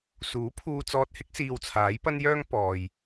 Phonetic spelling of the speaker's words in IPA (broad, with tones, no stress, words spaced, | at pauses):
suː˨˥pʰuː˧t͡sɔː˧t̚hɪ˥k̚ siː˧wt͡sʰaː˨˥jpɐ˥njœː˥ŋ pɔː˨j